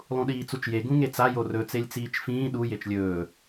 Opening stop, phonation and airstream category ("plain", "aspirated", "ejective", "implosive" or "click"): implosive